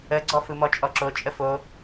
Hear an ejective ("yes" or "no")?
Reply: yes